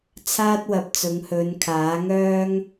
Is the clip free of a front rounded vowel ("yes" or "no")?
no